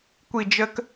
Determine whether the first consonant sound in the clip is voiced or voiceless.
voiceless